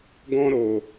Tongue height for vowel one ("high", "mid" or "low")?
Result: mid